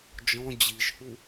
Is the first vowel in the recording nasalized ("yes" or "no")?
yes